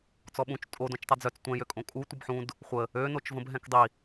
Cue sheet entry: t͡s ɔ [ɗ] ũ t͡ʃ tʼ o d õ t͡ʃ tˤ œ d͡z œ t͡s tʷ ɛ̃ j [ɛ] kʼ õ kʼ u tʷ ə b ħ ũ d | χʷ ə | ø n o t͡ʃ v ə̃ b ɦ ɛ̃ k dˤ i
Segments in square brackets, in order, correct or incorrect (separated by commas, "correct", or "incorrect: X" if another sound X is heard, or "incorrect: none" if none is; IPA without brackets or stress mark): incorrect: ɓ, incorrect: ø